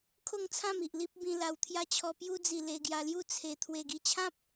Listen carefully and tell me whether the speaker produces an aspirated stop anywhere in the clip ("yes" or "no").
yes